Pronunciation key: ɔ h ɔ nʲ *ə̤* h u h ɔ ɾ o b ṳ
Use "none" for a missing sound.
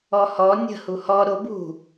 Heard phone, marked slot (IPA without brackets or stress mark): ə̤